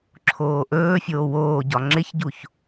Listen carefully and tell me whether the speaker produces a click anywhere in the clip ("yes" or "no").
yes